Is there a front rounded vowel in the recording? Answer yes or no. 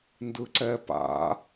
no